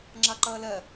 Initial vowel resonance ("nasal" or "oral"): oral